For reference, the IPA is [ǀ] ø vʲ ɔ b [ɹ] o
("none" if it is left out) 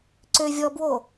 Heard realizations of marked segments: ǀ, w

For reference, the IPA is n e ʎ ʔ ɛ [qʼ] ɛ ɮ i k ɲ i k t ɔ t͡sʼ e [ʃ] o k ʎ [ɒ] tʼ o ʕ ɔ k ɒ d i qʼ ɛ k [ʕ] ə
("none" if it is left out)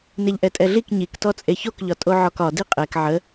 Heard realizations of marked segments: tʼ, ç, ɒ, ʕ

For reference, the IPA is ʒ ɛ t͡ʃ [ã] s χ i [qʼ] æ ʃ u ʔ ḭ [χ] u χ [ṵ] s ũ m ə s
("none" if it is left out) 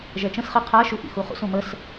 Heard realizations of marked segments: ə̃, qʰ, x, ṵ

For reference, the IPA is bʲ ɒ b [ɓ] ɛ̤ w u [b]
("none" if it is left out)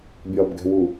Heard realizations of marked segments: ɡ, none

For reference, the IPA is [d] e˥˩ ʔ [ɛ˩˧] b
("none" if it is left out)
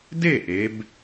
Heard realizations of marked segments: d, e˩˧

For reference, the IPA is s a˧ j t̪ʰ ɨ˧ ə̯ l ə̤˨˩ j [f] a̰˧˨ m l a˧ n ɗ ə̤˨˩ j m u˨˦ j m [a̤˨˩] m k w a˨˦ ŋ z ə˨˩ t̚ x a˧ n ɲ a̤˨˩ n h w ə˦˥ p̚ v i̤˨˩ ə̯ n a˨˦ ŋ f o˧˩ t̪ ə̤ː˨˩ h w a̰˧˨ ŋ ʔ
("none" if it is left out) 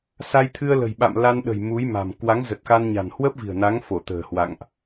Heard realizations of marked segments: ɓ, a̤˨˩

